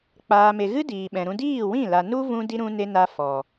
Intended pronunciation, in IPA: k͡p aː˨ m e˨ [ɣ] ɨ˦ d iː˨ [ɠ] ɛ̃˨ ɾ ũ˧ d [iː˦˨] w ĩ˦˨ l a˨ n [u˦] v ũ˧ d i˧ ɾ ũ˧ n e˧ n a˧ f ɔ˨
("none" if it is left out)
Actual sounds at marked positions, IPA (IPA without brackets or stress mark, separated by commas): ɣ, ɓ, iː˦˨, u˦